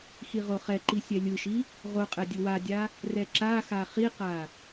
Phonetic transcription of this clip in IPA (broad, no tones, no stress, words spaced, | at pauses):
xiʁoχɛǃi sʲɛlʲɯʃi | ʁoqʼɛ dʲɯwadʲa | rɛǁaxa χiqa